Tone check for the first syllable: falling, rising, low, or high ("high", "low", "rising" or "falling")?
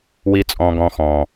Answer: high